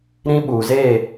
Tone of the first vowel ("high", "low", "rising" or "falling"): high